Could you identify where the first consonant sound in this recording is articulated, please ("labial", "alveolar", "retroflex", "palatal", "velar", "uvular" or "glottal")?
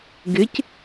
velar